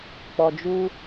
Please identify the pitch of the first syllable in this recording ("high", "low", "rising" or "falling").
low